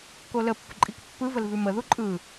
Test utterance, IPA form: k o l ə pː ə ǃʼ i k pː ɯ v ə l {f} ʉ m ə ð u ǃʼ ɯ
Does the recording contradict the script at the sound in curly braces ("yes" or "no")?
yes